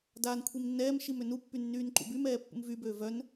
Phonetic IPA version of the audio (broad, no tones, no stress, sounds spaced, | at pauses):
d aː n kʷʰ i m nː ɛː m ʃ i m ø n u pː y nː yː n ǃ ṵ b y m ɛː pː ṵ m v y b øː v œ n